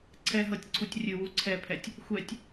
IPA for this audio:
ǀʰɛɦɤtʲǀʰutʲ rʲɨwu ǀʰɛpʰɛtʲ | xʷɛtʲ

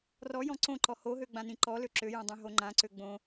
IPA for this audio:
rɔjɔ̃ ǀõǃɔ hoɦø ɡ͡bãnĩǃɔlø ǁøjõ dˤõɦoŋ͡ǃãǀø ɡ͡bõ

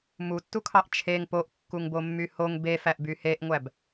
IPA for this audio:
mutːukʰɑʔ t͡ʃʰeŋ poʔkːuŋbomːy hoŋ befæʔby heʔŋʷæb

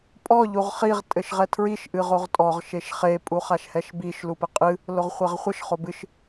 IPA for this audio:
pʼɔ ʎuʁχiʁ tʼɘʃʁɛtʰɹiʃ ʔɨʁoʁtʼɔʁ ʃeʃχe pʼuχaʃhɛʃbiʃ lupɘqʼɨ | loʁχʷɛʁχʷɘʃ χobɨʃ

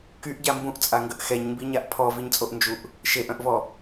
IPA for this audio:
kyʔɟa mbũʔt͡sʼaŋɡəʔ xɛɲmbiɲaʔ pʰɔviɲt͡sʼoʔnd͡ʒuʔ | ʃeʔœ̃ʔvɔ

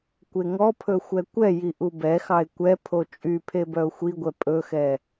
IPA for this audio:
kʷeŋɔpʰɵ xʷɛkʷɛji ʔubɛxɑɪ̯ kʷɛ pʰot͡ʃʼypʰe bœʊ̯xʷiɡʷɛ pʼɵxɛ

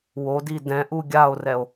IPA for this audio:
wodi dɛ̃ʔu ɡʲao̯rɛo̯

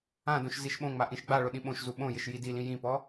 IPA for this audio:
ãdõʃ ziʃɓõŋ͡ma ʔĩʃɡ͡baɭʊ ɗĩɓõʃzu ɓõjɪʃ jidilĩ jĩpɔ

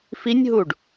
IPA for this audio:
finʲɦuɖ

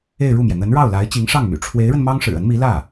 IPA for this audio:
e˥˧ɪ̯ɻu˥˩mjɛ˩ n̪ə˧˥nɻɑ˥˩ʊ̯la˧˥ɪ̯ t͡ɕi˧˥ŋʂɑ˥˩ŋmy̰˨˩ ʈ͡ʂʰwe˧˥ɪ̯ɻə˧n mɑ˥ŋʂɻ̩˨˩ə˧˥nmi˧˥ lä˥˩

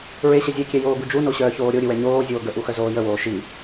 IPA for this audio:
ɹeɕə zʲɛkʲɛ joːɡud͡ʒuno ɕœːçoːɾʲoɾʲɨ wɛɲoːzʲoː ɡəʔu xœzoːjəwoː ʃi

